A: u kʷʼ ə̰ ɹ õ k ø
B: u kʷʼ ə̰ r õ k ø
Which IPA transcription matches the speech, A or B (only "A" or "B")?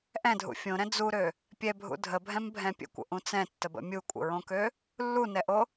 A